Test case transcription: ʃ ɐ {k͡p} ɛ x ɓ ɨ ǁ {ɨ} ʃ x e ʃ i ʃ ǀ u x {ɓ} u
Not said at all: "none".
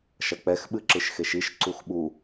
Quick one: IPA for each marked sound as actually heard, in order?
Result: k͡p, ɨ, ɓ

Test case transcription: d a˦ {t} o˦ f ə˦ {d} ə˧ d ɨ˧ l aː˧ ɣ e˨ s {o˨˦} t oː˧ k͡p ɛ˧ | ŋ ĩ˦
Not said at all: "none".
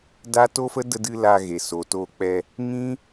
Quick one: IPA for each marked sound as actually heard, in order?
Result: t, d, o˨

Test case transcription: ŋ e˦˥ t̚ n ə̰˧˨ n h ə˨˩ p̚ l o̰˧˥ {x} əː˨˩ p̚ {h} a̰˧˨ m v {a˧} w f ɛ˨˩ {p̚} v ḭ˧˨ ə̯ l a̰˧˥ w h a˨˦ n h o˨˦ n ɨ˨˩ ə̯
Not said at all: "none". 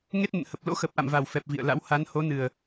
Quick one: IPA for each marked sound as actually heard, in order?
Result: x, ʔ, a˨˩, p̚

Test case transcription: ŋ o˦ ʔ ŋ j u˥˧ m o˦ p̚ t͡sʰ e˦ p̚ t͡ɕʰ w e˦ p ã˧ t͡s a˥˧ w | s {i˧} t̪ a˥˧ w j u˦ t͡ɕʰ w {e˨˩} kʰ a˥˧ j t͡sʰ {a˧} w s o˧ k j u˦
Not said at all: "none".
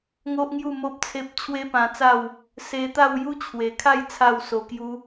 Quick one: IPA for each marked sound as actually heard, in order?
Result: e˧, e˨˩, a˥˧

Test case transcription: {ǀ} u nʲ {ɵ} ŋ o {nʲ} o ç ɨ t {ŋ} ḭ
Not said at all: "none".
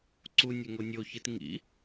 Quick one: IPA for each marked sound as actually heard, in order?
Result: ǀ, ɵ, nʲ, ŋ

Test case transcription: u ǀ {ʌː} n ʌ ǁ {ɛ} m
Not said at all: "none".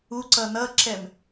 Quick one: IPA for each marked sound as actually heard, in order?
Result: ʌ, ɛ

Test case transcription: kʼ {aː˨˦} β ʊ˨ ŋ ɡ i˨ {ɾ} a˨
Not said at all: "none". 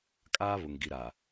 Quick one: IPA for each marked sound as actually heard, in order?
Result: aː˦, ɾ

